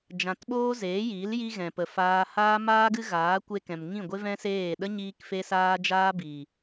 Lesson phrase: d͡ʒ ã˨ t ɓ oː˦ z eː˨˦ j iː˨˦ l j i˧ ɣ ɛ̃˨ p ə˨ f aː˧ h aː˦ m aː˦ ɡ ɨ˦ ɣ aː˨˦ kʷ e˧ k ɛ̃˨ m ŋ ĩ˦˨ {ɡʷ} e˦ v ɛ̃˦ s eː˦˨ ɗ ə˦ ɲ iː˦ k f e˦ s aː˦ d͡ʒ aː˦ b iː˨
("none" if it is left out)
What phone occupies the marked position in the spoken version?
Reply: ɡʷ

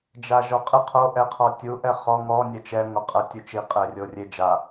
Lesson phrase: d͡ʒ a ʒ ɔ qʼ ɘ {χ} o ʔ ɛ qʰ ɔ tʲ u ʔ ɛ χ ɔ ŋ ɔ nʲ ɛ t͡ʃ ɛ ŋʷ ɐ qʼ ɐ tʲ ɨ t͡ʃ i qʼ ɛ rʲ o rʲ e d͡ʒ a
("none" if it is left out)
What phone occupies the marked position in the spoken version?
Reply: qʰ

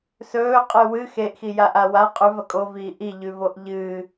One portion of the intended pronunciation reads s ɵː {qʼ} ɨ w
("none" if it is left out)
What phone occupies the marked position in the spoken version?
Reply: qʼ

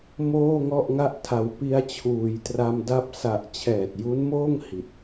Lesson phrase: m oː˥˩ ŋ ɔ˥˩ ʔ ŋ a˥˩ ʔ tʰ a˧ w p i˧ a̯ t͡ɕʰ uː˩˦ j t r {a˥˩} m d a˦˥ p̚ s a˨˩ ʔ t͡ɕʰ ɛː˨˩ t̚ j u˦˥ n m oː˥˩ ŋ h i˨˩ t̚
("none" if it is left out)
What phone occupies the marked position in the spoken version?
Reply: a˧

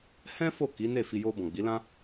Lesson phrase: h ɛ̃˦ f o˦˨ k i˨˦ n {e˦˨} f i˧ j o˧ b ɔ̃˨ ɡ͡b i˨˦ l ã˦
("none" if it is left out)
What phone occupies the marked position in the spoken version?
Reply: e˦˨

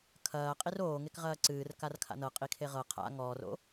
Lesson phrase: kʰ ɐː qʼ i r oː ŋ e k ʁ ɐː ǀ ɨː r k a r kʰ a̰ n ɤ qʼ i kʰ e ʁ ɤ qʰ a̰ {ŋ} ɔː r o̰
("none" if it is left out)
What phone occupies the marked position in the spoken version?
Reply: ŋ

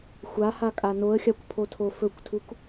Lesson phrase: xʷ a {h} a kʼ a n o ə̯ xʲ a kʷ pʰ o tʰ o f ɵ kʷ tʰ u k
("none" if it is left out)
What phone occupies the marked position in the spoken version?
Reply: h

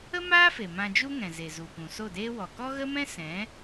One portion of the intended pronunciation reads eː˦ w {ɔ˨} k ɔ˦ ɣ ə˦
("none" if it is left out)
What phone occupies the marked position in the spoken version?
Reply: ɔ˨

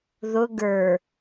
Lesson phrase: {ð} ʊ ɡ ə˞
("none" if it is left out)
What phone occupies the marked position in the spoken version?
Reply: ð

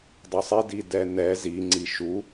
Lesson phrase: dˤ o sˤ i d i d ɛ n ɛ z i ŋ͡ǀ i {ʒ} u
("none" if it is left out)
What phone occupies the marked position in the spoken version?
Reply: ʃ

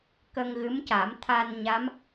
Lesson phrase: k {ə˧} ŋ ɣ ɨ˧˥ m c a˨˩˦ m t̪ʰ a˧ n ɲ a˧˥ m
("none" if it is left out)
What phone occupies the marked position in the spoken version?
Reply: ə˧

